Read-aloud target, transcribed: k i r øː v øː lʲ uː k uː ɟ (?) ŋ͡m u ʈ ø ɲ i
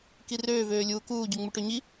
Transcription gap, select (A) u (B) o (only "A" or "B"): A